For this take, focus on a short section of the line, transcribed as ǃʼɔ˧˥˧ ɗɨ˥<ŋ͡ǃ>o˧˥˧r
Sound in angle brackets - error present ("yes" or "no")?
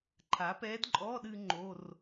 no